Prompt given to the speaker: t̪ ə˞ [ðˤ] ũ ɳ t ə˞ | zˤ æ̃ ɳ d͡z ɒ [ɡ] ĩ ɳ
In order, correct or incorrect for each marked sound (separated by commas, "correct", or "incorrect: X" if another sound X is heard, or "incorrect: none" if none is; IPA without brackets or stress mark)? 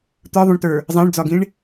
correct, correct